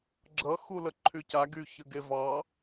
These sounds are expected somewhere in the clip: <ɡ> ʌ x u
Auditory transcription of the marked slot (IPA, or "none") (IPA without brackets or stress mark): ɡ͡ǁ